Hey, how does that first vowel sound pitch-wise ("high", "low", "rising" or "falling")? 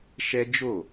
high